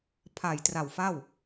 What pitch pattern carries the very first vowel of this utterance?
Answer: low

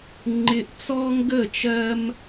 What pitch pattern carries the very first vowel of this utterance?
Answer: high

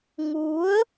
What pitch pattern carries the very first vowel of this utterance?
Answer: rising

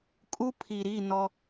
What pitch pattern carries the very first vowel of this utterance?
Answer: high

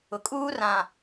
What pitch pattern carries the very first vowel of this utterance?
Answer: low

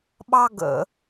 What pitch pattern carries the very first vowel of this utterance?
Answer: high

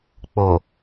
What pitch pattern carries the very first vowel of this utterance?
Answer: low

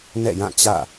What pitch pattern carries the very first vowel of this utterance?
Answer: falling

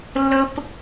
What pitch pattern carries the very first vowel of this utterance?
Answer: high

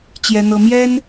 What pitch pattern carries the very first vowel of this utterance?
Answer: high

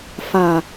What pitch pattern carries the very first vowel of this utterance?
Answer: low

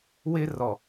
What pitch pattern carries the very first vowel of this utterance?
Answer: high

